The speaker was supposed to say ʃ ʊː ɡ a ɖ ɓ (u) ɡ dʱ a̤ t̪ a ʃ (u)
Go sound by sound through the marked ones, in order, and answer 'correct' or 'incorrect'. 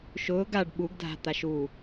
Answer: correct, correct

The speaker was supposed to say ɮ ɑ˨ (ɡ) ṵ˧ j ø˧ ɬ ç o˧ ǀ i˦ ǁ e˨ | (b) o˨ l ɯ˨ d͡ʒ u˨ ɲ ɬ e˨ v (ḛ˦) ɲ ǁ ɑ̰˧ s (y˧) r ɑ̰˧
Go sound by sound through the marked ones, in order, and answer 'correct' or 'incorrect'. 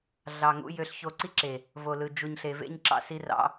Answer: incorrect, incorrect, correct, incorrect

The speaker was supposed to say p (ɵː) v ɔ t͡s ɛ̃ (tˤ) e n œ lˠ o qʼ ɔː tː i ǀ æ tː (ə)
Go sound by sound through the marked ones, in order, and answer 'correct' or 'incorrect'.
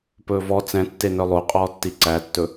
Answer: correct, incorrect, incorrect

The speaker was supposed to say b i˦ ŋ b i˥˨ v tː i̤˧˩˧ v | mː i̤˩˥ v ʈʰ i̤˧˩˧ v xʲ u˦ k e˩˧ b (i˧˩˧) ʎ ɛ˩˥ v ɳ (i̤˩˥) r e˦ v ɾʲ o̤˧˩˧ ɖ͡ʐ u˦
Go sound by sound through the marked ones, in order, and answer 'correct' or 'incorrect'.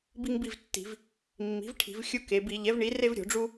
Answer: correct, incorrect

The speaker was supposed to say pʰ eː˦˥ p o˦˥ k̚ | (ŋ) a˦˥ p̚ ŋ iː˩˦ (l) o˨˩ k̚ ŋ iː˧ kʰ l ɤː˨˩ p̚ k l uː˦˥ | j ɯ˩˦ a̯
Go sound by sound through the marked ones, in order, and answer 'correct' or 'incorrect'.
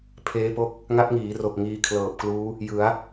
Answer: correct, incorrect

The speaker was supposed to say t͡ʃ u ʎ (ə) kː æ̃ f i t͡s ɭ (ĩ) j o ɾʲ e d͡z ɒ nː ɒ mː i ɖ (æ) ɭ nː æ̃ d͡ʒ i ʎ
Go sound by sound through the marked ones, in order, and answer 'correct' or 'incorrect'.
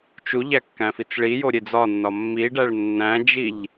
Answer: incorrect, incorrect, correct

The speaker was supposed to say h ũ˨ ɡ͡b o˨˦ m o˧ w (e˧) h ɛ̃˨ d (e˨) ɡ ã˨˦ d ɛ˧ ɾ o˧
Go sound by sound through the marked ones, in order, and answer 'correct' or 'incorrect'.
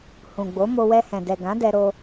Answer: incorrect, incorrect

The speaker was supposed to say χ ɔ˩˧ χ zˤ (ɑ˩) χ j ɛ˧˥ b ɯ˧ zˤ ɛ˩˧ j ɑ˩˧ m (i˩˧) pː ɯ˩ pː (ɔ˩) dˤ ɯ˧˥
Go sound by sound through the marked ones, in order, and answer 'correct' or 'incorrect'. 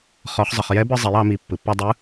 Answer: incorrect, correct, incorrect

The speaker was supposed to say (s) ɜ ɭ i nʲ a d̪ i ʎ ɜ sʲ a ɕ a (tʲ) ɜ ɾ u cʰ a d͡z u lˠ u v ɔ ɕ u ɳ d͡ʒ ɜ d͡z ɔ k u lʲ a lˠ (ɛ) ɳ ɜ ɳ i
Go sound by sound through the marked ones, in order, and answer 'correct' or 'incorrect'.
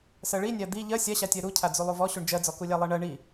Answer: correct, correct, incorrect

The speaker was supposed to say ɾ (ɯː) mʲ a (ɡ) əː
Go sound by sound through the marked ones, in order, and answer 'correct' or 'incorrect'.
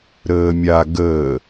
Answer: incorrect, correct

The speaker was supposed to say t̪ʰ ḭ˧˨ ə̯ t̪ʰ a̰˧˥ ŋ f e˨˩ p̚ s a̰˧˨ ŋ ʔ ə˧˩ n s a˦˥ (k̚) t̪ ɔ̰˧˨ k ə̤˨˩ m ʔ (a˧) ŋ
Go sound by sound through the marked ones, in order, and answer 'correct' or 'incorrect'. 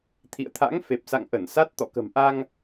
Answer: incorrect, correct

